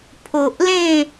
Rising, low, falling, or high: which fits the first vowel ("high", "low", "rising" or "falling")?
low